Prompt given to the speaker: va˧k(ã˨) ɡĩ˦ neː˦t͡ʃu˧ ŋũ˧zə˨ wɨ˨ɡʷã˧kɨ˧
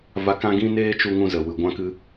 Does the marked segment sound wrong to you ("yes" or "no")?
yes